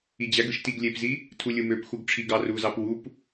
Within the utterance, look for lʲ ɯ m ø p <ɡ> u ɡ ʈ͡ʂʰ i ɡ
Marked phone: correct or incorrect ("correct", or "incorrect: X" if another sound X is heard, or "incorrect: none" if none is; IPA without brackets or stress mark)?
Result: incorrect: x